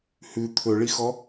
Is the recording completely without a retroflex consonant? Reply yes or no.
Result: no